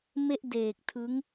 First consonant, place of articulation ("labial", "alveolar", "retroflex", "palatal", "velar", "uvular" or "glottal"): labial